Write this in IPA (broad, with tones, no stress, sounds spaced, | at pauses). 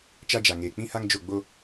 t͡ʃ a˦ d͡ʒ a˨ ŋ eː˨ k͡p ĩ˦ h a˦ ŋ d͡ʒ o˦˨ ɡ͡b o˦